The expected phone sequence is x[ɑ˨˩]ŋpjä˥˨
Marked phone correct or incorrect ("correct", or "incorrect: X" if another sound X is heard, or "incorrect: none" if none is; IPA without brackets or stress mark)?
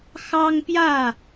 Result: incorrect: ɑ˦